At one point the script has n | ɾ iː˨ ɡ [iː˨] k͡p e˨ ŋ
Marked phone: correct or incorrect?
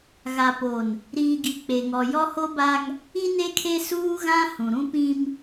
incorrect